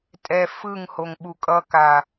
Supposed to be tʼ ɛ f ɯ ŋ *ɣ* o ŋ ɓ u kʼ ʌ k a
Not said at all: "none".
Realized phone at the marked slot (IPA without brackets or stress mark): h